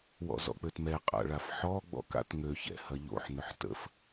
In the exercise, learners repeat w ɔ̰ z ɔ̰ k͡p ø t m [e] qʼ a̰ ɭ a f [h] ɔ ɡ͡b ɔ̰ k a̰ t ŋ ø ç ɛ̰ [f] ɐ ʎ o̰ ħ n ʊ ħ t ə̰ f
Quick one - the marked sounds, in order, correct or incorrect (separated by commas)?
incorrect, incorrect, incorrect